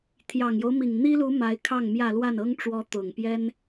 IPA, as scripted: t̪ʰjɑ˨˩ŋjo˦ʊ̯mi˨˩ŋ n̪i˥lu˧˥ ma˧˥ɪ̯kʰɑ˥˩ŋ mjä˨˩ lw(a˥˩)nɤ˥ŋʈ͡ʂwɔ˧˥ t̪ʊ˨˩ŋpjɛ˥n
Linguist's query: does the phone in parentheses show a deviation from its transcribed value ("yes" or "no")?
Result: no